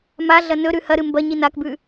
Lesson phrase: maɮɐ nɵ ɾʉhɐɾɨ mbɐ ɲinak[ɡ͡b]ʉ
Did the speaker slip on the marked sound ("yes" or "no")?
yes